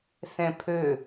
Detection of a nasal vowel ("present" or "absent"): present